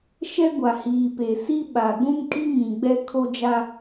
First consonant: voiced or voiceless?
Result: voiceless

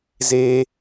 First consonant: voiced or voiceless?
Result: voiced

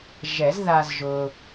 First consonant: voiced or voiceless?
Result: voiced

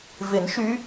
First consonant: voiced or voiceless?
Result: voiced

